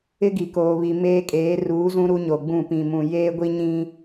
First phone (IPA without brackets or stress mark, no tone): ɪ